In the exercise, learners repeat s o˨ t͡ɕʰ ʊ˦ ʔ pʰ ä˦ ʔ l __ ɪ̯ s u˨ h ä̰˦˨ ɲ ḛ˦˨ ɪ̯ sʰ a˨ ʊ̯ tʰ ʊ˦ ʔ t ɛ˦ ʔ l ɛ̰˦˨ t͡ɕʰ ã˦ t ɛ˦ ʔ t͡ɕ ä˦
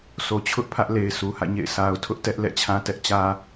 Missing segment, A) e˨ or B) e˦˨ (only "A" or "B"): A